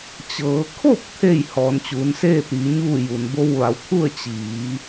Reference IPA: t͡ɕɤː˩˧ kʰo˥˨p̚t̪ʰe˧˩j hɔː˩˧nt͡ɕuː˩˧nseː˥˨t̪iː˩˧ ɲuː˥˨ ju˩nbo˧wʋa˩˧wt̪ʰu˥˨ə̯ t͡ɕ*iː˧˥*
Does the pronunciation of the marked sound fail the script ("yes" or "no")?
yes